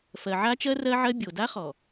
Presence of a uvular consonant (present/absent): present